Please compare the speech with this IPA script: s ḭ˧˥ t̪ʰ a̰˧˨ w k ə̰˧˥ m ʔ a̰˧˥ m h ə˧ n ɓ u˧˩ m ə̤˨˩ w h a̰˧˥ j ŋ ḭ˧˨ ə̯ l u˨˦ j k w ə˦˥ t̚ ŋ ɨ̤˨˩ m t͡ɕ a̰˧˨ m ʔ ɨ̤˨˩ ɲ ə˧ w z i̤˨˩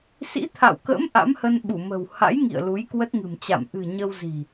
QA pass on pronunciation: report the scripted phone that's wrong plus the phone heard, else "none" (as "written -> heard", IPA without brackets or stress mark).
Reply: none